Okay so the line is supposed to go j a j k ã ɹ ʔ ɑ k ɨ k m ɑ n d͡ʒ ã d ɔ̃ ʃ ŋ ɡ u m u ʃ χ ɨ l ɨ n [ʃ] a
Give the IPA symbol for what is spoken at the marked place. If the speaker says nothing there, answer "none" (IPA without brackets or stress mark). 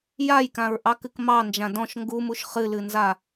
z